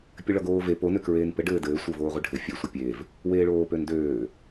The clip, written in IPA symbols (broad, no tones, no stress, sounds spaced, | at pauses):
pʲ ɘ ɭ ʌ ɡ oː v e p o n ø k ɹ eː n p ɘ ɖ ɘː d ɘː sʷ ɘ v oː ʁʷ e ɖʱ ɘ fʲ ø sʷ ə pʲ e v | w eː ɭ oː p ø n d øː